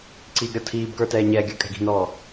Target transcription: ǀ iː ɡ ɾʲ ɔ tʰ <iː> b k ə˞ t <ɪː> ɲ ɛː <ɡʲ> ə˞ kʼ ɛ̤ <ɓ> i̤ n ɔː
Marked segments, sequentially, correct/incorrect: correct, incorrect, correct, incorrect

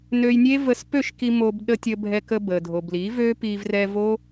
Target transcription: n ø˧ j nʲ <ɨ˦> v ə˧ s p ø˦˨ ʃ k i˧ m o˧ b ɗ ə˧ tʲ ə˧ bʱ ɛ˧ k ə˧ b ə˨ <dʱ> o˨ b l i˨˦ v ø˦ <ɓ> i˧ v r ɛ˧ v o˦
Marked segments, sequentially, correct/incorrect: incorrect, correct, incorrect

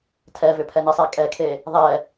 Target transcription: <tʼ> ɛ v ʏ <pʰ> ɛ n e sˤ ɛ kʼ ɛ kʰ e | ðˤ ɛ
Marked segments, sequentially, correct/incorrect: incorrect, correct

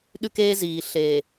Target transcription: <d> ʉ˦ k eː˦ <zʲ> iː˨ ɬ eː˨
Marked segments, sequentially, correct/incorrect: incorrect, incorrect

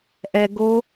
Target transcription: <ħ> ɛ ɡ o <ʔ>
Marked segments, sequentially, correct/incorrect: incorrect, incorrect

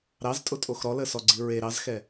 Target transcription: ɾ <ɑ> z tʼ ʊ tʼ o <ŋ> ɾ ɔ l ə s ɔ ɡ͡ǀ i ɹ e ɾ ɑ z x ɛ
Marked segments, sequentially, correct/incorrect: correct, incorrect

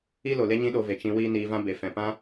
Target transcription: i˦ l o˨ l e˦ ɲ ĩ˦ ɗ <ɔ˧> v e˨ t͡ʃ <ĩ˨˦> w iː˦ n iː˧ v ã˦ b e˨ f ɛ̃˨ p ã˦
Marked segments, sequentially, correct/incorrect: incorrect, incorrect

